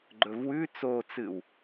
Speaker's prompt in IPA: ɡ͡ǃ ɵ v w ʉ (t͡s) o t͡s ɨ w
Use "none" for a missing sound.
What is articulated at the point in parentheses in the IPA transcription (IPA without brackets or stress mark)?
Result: t͡s